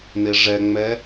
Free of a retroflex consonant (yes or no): no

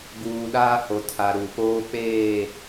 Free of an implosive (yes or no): no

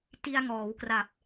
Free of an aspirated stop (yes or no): yes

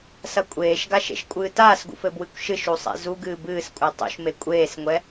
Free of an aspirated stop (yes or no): yes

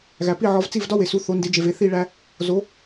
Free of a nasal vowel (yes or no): yes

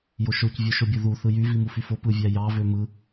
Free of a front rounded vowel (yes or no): no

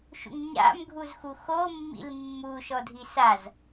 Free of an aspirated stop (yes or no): yes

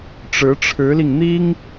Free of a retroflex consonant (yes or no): no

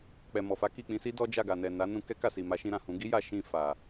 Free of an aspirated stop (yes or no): yes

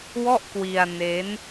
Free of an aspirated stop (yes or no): yes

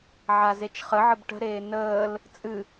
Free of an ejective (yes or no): no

